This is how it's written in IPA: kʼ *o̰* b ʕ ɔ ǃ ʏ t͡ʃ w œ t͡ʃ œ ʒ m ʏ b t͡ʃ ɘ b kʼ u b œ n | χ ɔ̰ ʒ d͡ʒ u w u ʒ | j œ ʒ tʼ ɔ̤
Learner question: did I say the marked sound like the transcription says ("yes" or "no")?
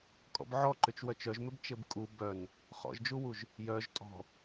no